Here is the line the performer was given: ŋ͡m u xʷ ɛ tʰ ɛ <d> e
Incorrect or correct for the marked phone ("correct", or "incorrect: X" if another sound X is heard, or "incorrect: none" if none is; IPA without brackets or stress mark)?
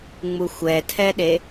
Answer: incorrect: ɗ